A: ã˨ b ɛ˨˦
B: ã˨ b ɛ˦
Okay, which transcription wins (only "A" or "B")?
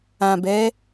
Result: A